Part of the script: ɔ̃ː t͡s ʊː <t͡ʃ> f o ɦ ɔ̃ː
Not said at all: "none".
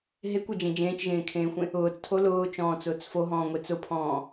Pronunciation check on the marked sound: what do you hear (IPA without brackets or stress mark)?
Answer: t͡s